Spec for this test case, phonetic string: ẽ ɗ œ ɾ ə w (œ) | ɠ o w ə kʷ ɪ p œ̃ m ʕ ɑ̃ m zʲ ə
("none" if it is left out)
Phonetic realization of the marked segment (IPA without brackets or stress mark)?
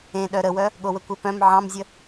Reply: œ